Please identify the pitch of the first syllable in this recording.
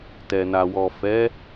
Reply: low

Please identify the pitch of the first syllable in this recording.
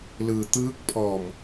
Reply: low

